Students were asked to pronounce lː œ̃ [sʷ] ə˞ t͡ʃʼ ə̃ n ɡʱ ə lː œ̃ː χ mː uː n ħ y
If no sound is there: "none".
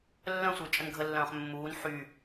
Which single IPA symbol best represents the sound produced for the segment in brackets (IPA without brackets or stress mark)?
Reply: sʷ